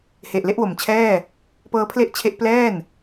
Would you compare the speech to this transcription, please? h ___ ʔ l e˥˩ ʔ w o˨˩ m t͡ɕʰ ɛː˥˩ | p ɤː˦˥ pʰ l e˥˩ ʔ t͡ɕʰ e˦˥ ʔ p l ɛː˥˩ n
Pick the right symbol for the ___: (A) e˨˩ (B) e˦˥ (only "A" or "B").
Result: A